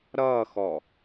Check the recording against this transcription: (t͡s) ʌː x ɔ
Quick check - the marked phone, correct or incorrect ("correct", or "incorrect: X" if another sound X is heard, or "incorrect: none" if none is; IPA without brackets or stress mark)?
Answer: incorrect: ɾ